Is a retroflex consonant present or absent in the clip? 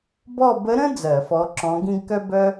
absent